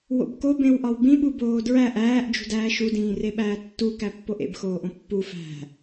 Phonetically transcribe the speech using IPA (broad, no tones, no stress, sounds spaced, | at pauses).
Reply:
w o̰ b k o b ẽ w ʔ ɒ w b ĩ ɓ u b oː d ɹ æ ʔ æː ʔ d͡ʒ ṳ d æː ʃ u d ĩː r e ɓ æː tː u k æ pː o ʔ ḛ b x oː ʔ õ pː u f æ̤